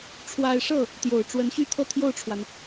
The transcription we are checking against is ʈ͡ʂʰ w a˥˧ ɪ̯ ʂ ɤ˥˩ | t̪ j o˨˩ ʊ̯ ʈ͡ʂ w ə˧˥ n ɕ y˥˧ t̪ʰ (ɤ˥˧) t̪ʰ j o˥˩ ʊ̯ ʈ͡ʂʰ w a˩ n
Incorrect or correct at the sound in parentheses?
correct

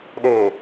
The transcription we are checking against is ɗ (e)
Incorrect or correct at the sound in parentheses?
correct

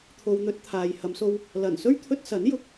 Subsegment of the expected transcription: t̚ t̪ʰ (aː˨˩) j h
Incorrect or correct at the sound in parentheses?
incorrect: aː˨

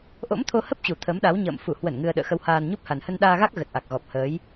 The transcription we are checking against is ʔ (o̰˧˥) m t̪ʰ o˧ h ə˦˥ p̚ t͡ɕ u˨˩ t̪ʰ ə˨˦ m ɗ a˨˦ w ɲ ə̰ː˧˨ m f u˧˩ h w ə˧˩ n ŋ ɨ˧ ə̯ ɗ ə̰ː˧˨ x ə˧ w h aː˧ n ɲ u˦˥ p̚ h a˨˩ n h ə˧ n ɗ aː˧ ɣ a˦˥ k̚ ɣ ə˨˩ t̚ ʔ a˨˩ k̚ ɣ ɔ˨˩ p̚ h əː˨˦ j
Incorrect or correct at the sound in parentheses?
correct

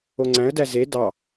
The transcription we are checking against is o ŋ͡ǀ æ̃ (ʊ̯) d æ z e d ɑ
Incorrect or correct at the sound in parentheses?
incorrect: ə̯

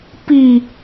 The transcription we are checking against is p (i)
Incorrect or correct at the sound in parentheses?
correct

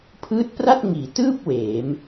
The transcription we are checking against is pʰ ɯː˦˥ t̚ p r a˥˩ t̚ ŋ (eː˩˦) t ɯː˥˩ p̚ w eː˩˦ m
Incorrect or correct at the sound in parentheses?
incorrect: iː˩˦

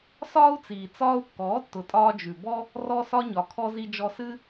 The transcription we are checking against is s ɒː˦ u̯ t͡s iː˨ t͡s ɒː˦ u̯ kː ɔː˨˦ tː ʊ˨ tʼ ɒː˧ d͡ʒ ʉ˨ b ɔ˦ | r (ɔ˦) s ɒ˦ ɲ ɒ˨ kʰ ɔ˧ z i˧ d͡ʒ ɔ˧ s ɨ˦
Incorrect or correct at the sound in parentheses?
correct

